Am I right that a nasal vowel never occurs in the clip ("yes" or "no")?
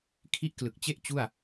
yes